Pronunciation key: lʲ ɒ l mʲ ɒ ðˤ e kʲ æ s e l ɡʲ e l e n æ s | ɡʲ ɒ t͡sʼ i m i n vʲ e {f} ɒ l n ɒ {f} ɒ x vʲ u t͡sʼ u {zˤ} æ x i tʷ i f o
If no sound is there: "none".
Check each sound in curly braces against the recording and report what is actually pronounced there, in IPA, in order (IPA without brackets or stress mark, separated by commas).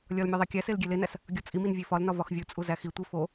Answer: f, v, z